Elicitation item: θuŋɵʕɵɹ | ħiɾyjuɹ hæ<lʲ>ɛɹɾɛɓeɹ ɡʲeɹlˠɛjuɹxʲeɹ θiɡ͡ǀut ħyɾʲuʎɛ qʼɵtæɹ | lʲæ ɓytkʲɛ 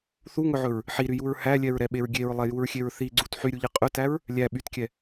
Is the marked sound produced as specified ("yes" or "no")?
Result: yes